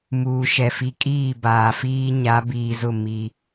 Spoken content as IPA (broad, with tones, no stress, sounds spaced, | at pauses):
m uː˨ ʃ ɛ˨ f i˨ kʼ iː˦˨ b aː˨ f iː˦ ɲ a˨˦ b iː˨ z ʊ˦˨ m i˦